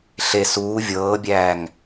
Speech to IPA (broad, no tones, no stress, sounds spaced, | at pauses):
ɬ e s uː vʲ ɤː bʲ æː ŋ